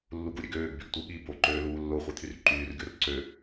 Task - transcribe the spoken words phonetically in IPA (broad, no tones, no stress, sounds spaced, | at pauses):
lː u ɡ u ɾʲ ø ɡ øː ɡ b y ɡ tʷ ɯ ɠ i b o ǃ øː l uː lː o χʷ e t̪ʰ y r ǃ yː r ɡʲ o r ǀ ø